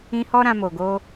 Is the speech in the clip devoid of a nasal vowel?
no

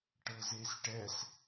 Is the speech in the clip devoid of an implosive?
yes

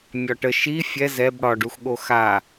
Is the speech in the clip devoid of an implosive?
no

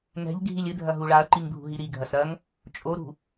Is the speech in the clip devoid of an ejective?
no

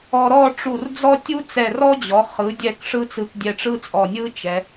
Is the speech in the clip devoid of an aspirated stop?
yes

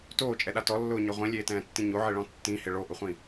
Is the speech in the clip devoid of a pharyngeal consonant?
no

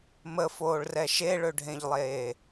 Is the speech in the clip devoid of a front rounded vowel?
no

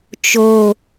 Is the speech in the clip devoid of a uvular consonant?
yes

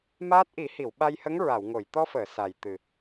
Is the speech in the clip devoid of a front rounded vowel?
yes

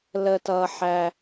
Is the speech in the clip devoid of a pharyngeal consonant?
no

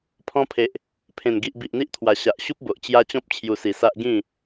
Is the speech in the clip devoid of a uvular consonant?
yes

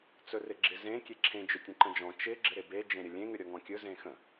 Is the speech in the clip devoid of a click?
no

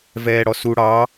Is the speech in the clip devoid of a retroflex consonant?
no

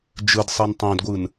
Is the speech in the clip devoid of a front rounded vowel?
yes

